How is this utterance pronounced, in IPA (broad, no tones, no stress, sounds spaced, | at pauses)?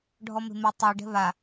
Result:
ɖʱ ɔ m e̤ m e tˤ e ɖ ɛ̤ β a